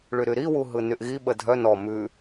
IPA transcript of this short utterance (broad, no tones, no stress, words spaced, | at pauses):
ɭyɾyɾiwu ɦɯnyʔɣiɓə dʱœ nɔ mʉ